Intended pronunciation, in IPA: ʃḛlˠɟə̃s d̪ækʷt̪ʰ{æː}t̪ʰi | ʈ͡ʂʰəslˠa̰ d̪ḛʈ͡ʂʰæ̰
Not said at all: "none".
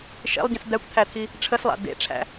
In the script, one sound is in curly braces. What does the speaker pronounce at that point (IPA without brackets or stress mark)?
æ